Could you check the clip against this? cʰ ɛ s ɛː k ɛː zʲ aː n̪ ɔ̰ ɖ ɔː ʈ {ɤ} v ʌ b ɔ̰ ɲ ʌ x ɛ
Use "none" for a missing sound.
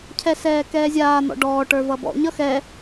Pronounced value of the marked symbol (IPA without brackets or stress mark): ə˞